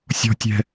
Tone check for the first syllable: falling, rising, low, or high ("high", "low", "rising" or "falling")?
high